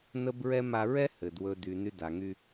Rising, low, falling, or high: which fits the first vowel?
high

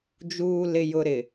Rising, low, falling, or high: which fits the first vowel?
low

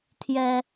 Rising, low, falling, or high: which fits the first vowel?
high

